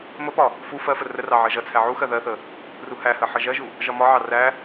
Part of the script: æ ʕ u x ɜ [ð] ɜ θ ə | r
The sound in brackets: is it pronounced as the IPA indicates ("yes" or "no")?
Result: yes